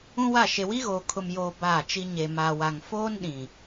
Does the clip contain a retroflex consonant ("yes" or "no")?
no